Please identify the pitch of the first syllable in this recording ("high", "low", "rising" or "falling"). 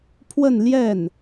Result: falling